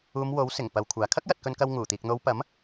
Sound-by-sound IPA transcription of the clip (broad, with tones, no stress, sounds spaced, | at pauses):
uː˨˧ m w o˨˥ w s ɪ˨˩ ŋ p ɐ˨ w kʷʰ aː˨ kʰ ɐ˥ k̚ j ɐ˨ t̚ k ɵ˧ n k ɐ˧ w ŋ uː˨˩ t̪ iː˨ k̚ n̪ o˨˧ w p ɐ˨˥ m